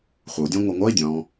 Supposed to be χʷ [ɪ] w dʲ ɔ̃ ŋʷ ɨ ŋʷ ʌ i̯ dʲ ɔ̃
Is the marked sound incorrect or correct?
incorrect